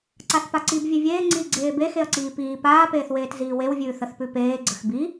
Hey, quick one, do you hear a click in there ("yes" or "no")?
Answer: yes